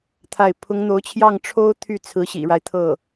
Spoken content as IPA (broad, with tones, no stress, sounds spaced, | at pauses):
t̪ʰ a˥˩ ɪ̯ pʰ ʊ˧˥ ŋ n̪ o˧˥ ʊ̯ t͡ɕʰ j ɑ˥˩ ŋ ʈ͡ʂʰ o˥ ʊ̯ t̪ʰ y˥˩ t͡sʰ ɹ̩˧˥ ɕ ḭ˨˩ ɻ a˦ ɪ̯ t̪ʰ ɤ˥˩